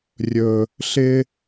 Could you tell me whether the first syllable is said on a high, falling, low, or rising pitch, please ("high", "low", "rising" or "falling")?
low